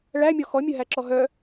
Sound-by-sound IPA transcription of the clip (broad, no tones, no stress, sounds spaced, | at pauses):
ɭ æ mʲ ɔ x ɔ mʲ ø ɦ æ ǁ ɔ ɦ œ